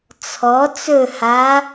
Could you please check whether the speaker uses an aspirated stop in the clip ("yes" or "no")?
yes